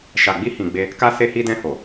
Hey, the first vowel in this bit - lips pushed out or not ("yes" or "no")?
no